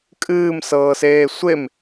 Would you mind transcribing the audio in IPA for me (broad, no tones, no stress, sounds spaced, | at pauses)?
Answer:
kʼ ɨː m s ɤː s eː sʷ e m